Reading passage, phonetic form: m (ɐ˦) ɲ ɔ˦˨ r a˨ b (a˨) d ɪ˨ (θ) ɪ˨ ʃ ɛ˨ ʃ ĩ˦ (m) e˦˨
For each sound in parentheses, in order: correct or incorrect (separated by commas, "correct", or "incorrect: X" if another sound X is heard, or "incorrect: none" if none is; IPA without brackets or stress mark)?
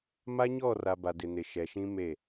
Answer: incorrect: a˦, correct, incorrect: n, correct